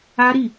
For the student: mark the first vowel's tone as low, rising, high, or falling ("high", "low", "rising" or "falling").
high